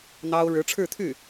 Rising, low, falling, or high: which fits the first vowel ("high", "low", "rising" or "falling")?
high